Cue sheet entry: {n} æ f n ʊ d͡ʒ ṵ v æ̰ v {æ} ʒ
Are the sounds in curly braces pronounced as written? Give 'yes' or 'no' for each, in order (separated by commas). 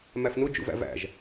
no, no